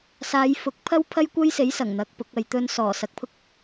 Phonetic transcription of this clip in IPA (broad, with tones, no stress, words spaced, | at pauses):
saː˨˧jfʊ˨˥k̚pʰɐ˥w pʰɐ˥jkʷɐ˥jse˨˥j sɐ˨˩ŋn̪ɐ˨˥k̚ pʊ˨˥k̚ɐ˧jt̪ɵ˥n sɔː˨˩sɐ˨k̚pʰʊ˥k̚